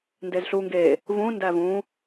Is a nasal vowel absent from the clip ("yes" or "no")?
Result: no